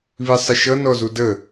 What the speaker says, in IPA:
β i sˤ ɪ ʃ ʌ n ɔ z u d ə

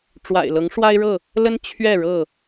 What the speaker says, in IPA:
ʈ͡ʂ w a̰˨˩ ɪ̯ l ɤ˨˦ ŋ ʂ w a˦ ɪ̯ ɻ ɤ˥˨ | l ə˦ n t͡ɕʰ ɥ ɛ˥˨ ɻ ɤ˥˨

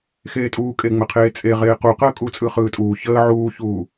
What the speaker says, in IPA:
x eː tʼ uː kʼ e ŋ͡m ə qʰ eː t͡sʼ e ʁ eː q u q əː kʼ uː t͡sʼ ɯ χ ɯː tʼ uː ç əː ʕ uː ç uː

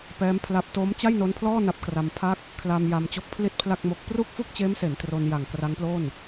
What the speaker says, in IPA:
p ɛː˦˥ m pʰ l a˦˥ p̚ t oː˦˥ m t͡ɕ a˥˩ j n o˦˥ n pʰ l ɔː˥˩ n a˦˥ p̚ k r a˧ m pʰ a˥˩ k̚ | kʰ l a˧ m j a˧ m t͡ɕ o˦˥ k̚ pʰ l i˥˩ t̚ pʰ l a˥˩ k̚ m o˦˥ k̚ p r u˥˩ k̚ f u˥˩ k̚ t͡ɕ eː˦˥ m s e˩˦ n t r o˧ n j a˨˩ ŋ k r a˦˥ ŋ p l o˥˩ n

